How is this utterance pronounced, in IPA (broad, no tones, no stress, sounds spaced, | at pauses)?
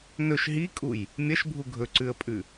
n ɵ ʃ ɦ i kʼ u j | mʲ ɐ ʃ bʱ u ɡʱ ɵ ǀ ʉ ə̯ pʼ ʉ